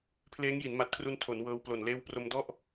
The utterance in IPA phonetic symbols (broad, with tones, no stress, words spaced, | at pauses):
pʰleː˦˥ŋji˩˦nma˨˩t̚kʰru˧n tʰo˩˦n wɤː˧wplo˨˩n leː˦˥wpro˧m dɔ˥˩ʔ